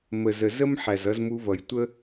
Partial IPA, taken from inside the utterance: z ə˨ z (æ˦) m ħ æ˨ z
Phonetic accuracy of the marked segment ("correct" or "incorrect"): incorrect